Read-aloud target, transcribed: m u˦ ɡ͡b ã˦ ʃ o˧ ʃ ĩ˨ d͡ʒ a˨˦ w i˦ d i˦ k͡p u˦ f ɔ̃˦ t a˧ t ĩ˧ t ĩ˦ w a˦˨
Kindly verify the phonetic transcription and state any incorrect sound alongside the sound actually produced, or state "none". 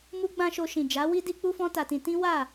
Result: none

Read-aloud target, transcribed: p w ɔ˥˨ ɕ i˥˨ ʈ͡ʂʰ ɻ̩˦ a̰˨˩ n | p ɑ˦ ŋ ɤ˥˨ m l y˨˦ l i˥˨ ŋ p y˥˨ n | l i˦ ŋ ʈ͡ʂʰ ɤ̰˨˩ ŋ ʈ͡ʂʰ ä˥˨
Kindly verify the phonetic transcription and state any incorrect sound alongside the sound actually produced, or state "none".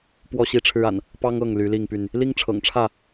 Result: m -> ŋ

